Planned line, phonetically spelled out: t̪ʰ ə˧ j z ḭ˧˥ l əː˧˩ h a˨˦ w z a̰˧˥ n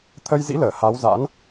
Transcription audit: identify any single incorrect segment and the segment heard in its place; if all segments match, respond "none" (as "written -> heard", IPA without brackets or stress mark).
none